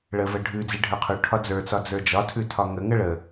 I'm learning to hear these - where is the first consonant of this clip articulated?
retroflex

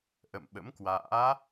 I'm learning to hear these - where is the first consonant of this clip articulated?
throat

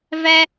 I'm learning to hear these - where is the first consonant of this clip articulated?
lips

